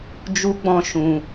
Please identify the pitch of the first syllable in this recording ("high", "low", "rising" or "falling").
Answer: high